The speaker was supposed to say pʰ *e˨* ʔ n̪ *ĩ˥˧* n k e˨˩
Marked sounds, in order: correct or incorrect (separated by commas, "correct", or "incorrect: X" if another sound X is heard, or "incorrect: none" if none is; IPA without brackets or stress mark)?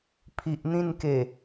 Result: incorrect: i˨, correct